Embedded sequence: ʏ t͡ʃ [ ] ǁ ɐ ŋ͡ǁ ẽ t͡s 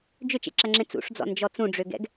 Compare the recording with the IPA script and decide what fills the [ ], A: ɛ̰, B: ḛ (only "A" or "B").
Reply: B